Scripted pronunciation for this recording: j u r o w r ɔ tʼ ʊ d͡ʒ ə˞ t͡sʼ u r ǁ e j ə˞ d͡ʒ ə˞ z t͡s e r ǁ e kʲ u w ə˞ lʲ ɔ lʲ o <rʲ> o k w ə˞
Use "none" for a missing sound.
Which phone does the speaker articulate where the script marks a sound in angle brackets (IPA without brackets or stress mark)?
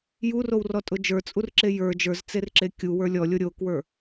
ɾʲ